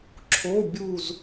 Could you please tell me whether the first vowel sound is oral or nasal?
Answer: oral